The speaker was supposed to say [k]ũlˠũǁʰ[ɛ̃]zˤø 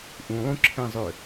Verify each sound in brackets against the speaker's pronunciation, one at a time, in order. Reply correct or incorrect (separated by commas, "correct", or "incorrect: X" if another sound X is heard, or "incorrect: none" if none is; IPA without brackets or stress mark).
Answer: incorrect: ʔ, correct